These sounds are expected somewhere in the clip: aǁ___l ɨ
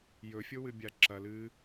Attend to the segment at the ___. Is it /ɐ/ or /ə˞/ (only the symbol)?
ɐ